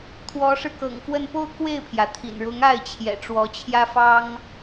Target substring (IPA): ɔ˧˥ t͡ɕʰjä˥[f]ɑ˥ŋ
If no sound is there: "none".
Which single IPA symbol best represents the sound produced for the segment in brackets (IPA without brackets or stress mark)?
f